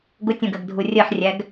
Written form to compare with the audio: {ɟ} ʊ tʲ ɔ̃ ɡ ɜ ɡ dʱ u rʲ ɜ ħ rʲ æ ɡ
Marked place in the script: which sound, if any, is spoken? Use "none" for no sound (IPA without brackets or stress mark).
ɡ